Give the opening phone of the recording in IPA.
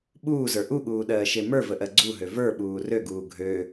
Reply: ɓ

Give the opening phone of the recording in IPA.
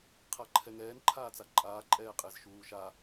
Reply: qʰ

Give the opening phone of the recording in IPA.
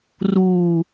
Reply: r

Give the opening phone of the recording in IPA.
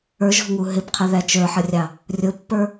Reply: ə˞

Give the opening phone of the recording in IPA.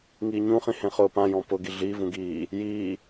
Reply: ŋ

